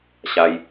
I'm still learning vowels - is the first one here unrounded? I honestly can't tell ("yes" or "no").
yes